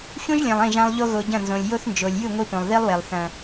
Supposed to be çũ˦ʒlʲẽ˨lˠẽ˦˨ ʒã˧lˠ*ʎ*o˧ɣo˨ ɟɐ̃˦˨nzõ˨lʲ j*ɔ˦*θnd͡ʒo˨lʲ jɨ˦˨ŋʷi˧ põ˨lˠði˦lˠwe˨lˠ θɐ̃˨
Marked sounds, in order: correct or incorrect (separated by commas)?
correct, incorrect